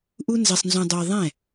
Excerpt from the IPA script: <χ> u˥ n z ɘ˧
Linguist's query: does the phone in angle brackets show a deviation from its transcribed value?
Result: yes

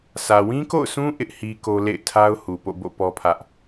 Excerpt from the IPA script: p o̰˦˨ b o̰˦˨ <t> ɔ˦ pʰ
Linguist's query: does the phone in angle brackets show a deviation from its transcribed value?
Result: yes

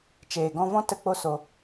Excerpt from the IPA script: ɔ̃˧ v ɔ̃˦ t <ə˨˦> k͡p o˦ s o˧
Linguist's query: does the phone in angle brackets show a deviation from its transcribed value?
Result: yes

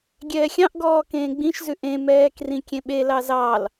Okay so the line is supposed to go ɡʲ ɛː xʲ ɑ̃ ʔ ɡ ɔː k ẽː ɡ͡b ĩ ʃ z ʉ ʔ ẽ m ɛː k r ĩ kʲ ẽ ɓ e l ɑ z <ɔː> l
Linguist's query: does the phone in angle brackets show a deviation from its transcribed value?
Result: yes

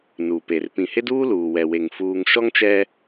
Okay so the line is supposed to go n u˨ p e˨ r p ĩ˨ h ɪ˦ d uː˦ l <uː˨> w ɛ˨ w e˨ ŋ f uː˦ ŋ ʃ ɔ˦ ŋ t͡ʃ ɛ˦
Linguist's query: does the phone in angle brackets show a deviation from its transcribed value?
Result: no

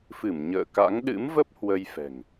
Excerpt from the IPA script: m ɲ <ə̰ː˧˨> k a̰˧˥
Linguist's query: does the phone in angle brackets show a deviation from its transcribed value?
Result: no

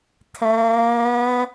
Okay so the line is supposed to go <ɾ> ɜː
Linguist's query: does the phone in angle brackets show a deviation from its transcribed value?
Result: yes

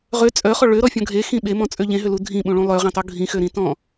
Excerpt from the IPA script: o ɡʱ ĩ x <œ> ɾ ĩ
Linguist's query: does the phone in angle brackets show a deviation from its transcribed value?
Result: yes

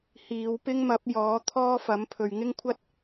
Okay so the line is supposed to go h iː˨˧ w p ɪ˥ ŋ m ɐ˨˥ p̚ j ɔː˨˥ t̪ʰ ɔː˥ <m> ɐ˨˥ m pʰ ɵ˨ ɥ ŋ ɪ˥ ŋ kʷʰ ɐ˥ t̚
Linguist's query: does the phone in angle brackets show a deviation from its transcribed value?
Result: yes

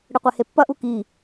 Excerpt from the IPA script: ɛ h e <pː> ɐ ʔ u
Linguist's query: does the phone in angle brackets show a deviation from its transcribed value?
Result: no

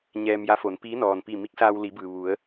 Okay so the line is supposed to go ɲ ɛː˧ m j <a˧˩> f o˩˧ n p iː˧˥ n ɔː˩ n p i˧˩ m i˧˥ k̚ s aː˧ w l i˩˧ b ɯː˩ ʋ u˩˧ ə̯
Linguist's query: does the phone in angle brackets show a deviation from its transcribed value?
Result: yes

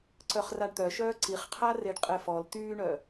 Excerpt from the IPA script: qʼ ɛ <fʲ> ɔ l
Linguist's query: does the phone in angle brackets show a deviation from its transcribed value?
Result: yes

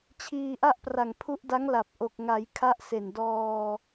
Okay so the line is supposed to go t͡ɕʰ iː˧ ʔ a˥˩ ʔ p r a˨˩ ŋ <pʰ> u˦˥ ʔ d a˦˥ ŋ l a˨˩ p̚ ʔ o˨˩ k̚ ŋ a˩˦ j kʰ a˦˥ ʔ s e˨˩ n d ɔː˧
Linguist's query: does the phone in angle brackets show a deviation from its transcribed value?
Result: no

